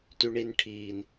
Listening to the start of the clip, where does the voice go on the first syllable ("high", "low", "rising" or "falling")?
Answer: low